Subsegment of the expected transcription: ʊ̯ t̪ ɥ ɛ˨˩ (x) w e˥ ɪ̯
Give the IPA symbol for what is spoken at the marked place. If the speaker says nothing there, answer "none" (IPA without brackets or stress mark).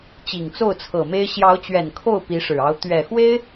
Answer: x